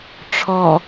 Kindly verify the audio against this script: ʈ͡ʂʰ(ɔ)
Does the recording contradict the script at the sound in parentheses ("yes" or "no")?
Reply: no